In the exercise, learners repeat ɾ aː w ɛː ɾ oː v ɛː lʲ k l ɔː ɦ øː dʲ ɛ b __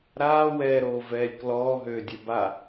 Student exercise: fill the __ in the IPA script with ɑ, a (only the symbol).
a